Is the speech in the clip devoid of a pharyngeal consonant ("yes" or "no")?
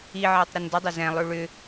no